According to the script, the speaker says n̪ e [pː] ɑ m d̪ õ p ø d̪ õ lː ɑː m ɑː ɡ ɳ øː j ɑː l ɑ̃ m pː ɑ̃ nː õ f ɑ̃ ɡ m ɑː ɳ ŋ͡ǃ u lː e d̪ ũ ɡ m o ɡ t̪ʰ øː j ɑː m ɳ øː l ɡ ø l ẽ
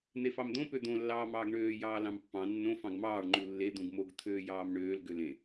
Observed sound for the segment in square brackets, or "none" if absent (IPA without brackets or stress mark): f